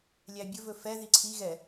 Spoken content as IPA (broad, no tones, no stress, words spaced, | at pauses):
lʲæbʲɵvɵ fɛ ðiǀʰi ɣɛ